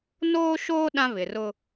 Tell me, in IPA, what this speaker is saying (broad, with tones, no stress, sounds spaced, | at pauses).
n oː˦ ʃ oː˦ ɗ ã˦ β ɪ˨ r ʊ˦